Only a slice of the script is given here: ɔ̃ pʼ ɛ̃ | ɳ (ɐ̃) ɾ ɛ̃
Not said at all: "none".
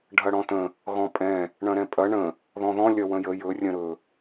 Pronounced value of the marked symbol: ɐ̃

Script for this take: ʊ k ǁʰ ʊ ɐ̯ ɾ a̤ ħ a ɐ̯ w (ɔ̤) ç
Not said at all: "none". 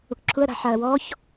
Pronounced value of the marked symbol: ɔ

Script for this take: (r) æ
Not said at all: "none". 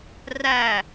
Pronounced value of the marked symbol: r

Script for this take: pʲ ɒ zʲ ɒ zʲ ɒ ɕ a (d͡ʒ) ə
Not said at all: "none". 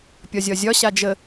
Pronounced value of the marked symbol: d͡ʒ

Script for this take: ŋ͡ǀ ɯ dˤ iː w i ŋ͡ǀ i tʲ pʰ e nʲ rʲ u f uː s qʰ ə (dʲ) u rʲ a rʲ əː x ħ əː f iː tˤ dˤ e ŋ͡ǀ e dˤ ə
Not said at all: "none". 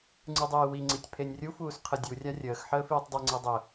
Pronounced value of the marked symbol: dʲ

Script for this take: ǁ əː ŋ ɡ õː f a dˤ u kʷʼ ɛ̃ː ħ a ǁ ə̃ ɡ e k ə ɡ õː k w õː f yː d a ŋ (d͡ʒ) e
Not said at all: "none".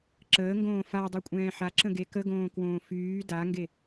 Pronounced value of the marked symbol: ɡ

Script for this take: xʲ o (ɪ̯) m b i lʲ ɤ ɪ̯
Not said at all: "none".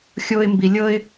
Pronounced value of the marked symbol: ɪ̯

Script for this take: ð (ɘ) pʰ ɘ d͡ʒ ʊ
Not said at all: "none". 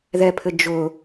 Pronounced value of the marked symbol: ɛ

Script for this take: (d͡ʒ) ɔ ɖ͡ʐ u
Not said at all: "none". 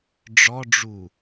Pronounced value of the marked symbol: ɖ͡ʐ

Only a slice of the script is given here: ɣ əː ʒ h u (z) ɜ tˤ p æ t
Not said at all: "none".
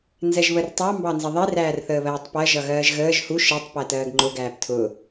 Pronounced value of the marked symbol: ʃ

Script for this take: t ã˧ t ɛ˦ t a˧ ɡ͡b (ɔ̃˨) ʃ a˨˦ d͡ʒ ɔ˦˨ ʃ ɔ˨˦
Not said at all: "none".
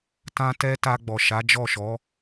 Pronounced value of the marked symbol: ɔ˨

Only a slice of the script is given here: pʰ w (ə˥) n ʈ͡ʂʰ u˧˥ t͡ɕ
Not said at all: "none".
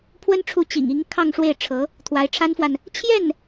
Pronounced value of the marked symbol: ə˥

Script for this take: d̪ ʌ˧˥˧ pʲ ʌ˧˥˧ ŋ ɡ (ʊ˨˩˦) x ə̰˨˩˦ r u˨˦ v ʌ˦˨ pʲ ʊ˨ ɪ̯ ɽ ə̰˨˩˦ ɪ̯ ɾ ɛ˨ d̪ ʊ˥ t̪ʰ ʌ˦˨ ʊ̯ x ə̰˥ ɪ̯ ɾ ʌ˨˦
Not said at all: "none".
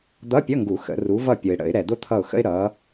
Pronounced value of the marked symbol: u˨˩˦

